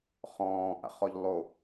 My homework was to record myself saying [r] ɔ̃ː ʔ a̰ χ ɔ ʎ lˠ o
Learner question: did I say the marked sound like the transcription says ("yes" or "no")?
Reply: no